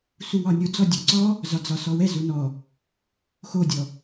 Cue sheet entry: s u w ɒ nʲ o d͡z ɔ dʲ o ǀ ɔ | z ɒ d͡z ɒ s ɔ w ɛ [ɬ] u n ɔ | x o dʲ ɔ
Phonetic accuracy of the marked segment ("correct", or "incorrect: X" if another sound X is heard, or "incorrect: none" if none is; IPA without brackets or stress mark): incorrect: z